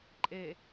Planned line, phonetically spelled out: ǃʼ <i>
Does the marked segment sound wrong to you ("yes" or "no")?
yes